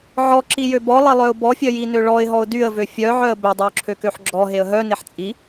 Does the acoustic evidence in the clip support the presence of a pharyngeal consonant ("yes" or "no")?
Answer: yes